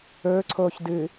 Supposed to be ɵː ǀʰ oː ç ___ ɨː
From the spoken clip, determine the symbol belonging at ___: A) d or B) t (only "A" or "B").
A